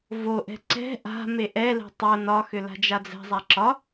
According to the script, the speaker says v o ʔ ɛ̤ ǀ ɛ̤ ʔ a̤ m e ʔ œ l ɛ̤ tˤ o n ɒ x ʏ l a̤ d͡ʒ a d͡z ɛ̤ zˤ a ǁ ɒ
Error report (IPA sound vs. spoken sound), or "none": œ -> ɛ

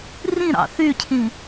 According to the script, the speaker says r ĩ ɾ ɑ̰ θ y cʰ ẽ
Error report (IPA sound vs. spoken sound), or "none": ẽ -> ĩ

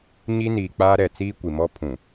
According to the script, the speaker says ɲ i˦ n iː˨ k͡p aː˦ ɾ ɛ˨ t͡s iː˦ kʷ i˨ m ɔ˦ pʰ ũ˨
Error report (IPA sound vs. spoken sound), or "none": none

